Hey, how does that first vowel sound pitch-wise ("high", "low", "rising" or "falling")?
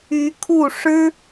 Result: rising